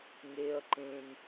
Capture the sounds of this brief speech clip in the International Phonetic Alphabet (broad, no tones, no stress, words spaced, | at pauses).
ŋeɐ̯ ǃẽn